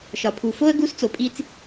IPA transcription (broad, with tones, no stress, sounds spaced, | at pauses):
ʃ ɒ˩ pʰ u˩ f o˥ ə̯ ɡ u˧˥ s t͡s o˩ pʼ i˧ t͡s